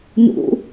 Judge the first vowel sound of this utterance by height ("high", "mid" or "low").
high